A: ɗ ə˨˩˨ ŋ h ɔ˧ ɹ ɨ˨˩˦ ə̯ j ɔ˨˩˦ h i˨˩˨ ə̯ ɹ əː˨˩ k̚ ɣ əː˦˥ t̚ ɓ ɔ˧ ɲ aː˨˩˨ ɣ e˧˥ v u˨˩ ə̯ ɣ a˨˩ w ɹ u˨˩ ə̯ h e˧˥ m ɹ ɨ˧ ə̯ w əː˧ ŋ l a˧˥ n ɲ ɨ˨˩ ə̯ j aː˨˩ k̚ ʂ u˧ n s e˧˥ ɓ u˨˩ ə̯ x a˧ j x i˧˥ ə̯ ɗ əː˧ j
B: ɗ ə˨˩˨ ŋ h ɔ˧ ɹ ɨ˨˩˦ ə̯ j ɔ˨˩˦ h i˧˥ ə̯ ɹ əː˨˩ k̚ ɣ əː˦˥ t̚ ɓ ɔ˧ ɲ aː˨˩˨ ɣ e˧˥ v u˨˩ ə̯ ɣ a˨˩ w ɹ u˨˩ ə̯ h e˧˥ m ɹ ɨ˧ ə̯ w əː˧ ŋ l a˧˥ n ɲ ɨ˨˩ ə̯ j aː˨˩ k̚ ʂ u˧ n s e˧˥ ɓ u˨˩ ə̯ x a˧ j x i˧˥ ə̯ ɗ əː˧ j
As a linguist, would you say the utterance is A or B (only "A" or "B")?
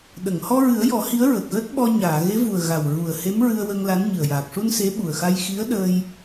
B